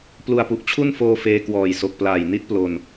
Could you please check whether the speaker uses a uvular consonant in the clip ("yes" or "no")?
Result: no